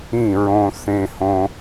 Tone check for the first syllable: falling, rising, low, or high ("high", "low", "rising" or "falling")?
falling